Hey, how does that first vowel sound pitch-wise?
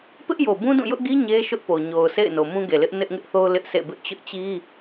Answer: high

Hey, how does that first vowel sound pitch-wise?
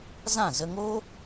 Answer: falling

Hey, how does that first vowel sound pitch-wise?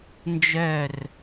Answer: falling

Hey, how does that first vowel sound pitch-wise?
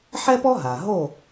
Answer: high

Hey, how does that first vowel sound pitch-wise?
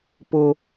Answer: high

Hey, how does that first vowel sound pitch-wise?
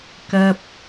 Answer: high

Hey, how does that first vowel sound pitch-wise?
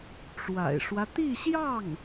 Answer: low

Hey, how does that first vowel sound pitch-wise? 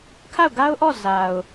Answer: falling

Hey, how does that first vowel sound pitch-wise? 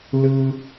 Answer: high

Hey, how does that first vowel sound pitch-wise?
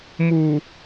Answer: low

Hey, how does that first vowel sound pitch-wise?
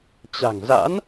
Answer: low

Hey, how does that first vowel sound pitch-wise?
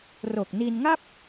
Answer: low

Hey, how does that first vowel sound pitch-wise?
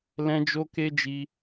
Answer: high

